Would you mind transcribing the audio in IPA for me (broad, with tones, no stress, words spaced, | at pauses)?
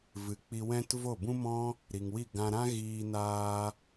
vɨ˨˦k͡pi˧wɛ̃˦t vo˦˨bũ˦mɔ̃˦ | ɾi˨ŋwi˦˨ ɡã˧ɾã˦ ɣiː˧naː˧